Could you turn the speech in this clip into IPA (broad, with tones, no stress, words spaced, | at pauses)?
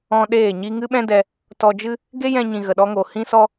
ɔ̃˧ ɗeː˦˨ɲi˦ ŋɨ˦ɓɛ̃˦dɛ˧ | tɔ˧d͡ʒɨ˦ | ɡe˦jɛ̃˧ɲĩ˨ ɣə˨ɗɔ˦ŋo˨ hĩ˦sɔ˦